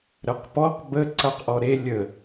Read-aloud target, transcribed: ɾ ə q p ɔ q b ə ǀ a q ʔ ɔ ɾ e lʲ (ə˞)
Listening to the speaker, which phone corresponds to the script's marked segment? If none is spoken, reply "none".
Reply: ə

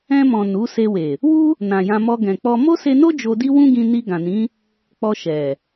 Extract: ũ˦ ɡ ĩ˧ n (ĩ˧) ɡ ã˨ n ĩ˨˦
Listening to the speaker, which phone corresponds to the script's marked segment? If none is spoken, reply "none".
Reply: i˧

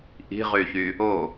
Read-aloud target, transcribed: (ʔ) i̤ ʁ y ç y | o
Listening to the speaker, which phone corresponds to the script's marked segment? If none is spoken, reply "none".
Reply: ʔ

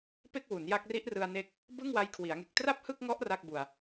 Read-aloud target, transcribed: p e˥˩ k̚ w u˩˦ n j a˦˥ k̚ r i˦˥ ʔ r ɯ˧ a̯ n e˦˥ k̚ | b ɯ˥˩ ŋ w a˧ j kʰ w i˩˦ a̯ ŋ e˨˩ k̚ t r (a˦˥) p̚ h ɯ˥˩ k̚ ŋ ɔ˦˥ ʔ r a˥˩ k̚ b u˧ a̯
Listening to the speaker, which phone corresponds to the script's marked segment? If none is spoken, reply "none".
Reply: a˥˩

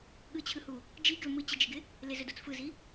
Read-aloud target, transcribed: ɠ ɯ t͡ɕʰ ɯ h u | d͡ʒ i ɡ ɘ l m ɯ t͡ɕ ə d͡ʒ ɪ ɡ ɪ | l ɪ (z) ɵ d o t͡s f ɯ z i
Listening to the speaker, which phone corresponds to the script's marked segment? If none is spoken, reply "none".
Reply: z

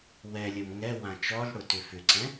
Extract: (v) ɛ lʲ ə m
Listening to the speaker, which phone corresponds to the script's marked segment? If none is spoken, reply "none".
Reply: w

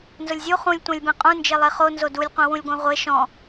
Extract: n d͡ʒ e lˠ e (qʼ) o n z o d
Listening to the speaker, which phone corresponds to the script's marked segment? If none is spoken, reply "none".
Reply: χ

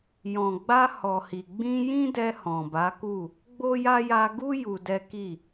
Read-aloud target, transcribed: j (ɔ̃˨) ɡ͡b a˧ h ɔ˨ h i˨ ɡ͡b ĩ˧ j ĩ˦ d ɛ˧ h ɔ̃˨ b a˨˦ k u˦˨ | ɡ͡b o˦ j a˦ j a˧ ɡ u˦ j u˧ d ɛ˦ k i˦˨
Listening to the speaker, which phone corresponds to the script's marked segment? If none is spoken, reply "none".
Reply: ɔ̃˨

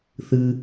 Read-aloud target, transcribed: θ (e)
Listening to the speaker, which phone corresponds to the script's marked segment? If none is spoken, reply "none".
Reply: ɨ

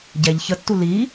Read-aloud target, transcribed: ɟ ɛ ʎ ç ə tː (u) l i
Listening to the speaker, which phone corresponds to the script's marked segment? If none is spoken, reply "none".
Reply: u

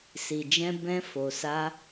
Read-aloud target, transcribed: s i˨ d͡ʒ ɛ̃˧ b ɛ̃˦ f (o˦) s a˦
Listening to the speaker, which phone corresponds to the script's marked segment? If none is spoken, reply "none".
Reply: o˧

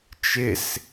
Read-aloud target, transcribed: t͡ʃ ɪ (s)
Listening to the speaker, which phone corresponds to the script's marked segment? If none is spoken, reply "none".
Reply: s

